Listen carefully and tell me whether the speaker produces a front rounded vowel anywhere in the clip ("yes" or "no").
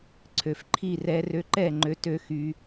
yes